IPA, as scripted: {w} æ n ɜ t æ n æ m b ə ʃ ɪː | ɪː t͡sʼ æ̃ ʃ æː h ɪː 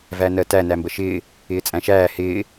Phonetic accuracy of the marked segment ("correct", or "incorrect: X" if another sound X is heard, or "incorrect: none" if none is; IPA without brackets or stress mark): incorrect: v